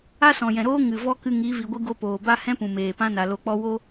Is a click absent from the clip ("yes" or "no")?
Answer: yes